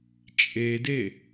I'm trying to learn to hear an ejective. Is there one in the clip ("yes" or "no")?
yes